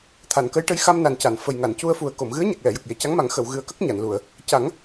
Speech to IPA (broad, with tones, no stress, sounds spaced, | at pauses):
t̪ʰ a˨˩˨ n k ə˧˥ j ʈ ə˧˥ j x a˧ m n a˨˩ n c a˨˩˨ n f ə˨˩ j ŋ a˨˩˨ n c u˧ ə̯ f u˨˩ ə̯ k o˨˩˨ m ɣ ɨ˧˥ ə̯ ɲ a˨˩ k̚ l ɛ˨˩˨ j ə˨˩ k̚ j e˨˩˨ c a˧˥ ŋ m a˨˩˦ ŋ x ə˨˩˨ w ɣ ɨ˨˩ ə̯ k ə˦˥ k̚ ɲ a˨˩˨ n l u˨˩˨ ə̯ | c a˨˩˦ ŋ